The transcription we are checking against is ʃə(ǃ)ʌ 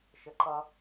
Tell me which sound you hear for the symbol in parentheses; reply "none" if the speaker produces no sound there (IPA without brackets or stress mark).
ǃ